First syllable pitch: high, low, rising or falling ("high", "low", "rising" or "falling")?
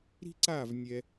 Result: high